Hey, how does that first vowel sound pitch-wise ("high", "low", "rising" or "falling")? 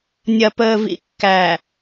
low